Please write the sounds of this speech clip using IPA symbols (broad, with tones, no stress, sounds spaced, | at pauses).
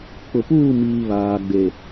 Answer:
k͡p ʊ˨ p uː˦˨ m iː˨ β aː˨ ɡ͡b e˨